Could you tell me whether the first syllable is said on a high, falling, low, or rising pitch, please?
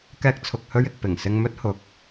high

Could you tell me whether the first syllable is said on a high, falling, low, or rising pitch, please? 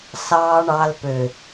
low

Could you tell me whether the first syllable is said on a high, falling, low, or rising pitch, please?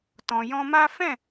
low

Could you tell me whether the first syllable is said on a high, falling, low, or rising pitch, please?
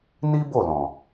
high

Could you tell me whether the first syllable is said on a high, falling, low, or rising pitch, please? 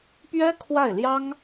high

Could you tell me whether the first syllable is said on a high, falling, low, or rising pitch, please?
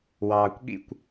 low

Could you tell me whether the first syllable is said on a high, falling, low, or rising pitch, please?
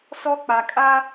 high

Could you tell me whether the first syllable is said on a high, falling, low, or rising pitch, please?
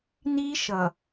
high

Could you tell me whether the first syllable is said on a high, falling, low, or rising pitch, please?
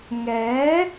rising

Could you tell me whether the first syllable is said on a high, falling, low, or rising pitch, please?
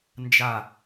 falling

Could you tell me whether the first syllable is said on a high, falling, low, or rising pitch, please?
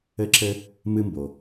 high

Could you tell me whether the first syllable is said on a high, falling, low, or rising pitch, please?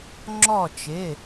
falling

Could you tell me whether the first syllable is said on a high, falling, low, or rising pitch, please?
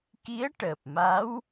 rising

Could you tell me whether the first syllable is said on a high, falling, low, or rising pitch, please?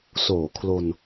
low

